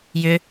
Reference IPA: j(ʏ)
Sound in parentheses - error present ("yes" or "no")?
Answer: no